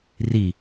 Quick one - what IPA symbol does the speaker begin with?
r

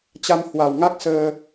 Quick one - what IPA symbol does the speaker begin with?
t͡ɕ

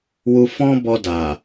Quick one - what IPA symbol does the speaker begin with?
w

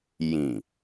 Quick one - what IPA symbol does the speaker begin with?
j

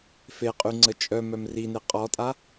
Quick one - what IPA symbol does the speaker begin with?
f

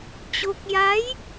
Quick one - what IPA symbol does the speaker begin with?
t͡ɕ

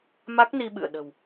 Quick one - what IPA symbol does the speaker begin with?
m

